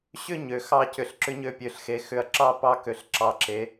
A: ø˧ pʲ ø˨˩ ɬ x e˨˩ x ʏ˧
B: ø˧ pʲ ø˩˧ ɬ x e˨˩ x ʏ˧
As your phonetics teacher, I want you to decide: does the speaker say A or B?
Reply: B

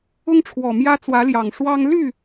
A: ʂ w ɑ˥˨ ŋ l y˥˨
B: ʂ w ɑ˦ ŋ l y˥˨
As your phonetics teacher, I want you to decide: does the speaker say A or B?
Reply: B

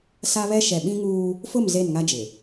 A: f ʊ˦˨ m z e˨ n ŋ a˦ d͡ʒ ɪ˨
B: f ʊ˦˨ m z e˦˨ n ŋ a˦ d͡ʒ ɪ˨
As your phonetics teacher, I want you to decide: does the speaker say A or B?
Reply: B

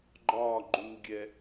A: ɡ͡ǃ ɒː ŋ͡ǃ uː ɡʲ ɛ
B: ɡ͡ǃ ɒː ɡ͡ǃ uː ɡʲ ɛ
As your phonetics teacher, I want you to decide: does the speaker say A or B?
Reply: B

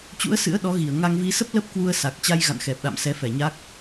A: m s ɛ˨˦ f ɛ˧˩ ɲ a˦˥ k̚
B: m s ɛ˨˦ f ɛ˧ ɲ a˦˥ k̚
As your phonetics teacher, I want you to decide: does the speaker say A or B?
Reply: A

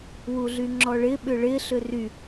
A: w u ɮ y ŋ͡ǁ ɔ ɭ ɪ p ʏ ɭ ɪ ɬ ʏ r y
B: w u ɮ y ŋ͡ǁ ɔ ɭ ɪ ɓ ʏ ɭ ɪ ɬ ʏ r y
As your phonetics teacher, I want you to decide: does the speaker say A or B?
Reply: B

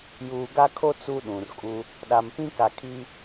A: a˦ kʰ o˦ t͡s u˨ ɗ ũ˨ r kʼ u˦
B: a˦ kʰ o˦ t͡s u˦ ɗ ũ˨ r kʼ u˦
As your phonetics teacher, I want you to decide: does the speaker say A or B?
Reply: B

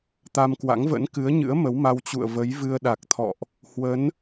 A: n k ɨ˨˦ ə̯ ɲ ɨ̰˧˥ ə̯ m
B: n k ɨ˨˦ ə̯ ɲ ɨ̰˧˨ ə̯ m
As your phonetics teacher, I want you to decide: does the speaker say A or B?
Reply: A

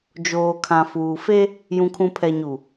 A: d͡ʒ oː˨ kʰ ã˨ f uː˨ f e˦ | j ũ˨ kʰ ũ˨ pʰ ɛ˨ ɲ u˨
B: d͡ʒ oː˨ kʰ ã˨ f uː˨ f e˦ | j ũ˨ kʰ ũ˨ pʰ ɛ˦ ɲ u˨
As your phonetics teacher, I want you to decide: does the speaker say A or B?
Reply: A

